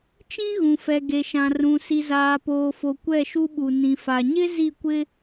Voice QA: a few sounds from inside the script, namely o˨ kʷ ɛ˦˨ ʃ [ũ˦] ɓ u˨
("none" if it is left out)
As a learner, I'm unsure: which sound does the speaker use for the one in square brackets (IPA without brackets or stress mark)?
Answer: u˦